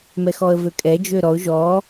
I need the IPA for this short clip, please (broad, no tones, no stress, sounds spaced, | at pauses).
m ɛ x ɔ ə̯ v ø kʼ ɛ d͡ʒ ø ɾ ɔ ʊ̯ ʒ ɔ